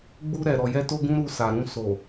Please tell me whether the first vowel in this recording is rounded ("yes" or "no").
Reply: yes